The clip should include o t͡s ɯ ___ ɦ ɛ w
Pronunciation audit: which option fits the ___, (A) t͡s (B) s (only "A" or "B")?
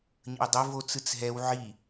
A